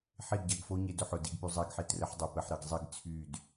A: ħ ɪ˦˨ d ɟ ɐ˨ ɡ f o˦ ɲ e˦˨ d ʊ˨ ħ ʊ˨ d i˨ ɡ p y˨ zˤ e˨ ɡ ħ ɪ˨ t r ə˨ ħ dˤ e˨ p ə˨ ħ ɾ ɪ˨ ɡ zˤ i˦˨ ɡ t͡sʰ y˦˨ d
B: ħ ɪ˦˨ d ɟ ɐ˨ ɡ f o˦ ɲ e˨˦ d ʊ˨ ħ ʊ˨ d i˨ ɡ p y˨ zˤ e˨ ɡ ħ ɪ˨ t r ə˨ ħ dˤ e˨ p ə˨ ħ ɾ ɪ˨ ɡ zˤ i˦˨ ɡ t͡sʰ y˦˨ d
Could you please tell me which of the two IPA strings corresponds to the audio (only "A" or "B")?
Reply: B